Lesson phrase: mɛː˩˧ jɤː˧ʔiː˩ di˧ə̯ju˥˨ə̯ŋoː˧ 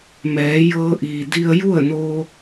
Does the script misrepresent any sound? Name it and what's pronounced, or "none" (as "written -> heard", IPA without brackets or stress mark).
ŋ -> n